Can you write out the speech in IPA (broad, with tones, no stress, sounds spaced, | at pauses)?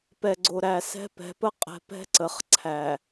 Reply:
p ɛ˨ ɡ͡ǀ o˨ ɾ æ˨ s ɛ̤˦ p ɛ̤˨˦ p ə˦ qʼ ɛ̤˦ p ɛ̤˦ ǀ ə˨ χ ǀʰ æ˨